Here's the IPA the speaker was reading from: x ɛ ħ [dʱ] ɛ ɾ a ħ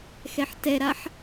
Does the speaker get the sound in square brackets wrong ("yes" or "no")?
yes